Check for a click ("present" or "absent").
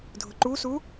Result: present